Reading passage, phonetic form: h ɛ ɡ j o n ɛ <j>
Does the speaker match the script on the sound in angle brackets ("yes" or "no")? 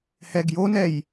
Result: yes